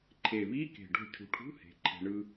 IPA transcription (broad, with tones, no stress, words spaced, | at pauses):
ǃʰe˨˩βi˧˥˧ke̤˨˩ ɖo̤˧ cʰṳ˨˩ʈʰṳ˧˥˧ he̤˩˧ǃʰe̤˨˩ɳɯ˧